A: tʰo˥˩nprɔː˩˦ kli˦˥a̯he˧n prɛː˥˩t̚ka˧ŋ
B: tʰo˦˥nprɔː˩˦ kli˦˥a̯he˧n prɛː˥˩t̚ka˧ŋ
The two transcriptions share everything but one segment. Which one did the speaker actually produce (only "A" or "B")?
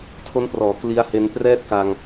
B